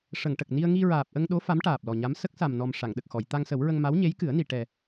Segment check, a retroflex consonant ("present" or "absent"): present